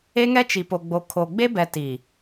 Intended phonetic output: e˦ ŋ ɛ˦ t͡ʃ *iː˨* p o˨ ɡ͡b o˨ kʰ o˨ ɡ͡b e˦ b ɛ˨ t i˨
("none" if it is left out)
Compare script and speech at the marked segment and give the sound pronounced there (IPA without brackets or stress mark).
i˨